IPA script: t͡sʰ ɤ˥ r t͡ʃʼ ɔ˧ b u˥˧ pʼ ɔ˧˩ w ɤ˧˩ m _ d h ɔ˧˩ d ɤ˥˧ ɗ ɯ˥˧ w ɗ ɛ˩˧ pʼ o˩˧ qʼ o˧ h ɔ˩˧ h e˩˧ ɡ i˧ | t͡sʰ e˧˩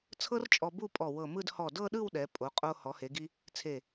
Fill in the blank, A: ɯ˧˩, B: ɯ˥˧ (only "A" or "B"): B